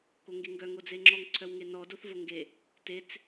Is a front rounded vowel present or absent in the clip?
present